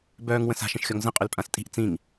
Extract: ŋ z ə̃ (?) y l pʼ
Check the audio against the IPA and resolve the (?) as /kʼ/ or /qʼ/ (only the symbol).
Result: qʼ